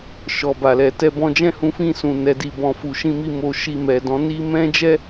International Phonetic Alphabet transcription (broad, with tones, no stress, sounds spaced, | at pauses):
ʃ ɔ˨ b a˨ l ɛ˨ t ɛ˧ b ɔ̃˧ d͡ʒ ɛ̃˦ h ũ˧ f ĩ˧ s ũ˨ n ɛ˨˦ d i˧ b ɔ̃˨ f u˨ ʃ ĩ˧ m i˧ m o˧ ʃ i˧ m ɛ˨ d ɔ̃˨˦ n i˦ m ɛ̃˦ d͡ʒ ɛ˦